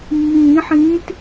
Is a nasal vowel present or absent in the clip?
present